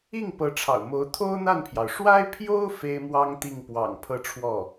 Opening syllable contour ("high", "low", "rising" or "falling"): falling